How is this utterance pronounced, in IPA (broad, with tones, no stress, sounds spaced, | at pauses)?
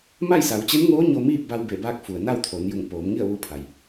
m a˥˨ j s a˩˧ w t͡ɕ e˧˥ n ŋ oː˧˥ ɲ o˧ m iː˥˨ p̚ b a˧ w b e˧˩ b aː˧ k̚ f u˩ ə̯ n a˥˨ w t̪ʰ o˩˧ n j u˧˩ ŋ p oː˩˧ m ŋ i˥˨ ə̯ ʋ u˧˥ pʰ a˩ j